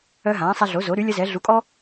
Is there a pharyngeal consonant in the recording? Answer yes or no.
no